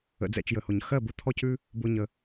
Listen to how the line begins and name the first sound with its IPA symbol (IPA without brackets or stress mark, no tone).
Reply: ə̰